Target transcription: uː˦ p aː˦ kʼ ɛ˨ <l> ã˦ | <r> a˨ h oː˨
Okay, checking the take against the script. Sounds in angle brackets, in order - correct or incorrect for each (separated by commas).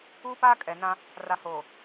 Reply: incorrect, correct